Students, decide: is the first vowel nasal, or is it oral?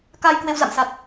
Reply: oral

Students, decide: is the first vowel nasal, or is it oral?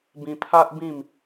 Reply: nasal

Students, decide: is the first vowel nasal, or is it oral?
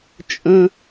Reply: nasal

